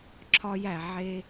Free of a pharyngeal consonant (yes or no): no